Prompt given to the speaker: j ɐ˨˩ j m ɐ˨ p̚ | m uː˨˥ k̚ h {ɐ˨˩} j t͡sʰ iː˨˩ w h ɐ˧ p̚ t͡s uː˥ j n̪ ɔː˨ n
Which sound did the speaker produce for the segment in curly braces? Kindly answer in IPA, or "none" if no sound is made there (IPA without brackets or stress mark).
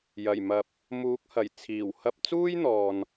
ɐ˨˩